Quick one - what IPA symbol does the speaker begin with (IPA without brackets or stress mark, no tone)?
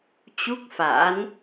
t͡ɕ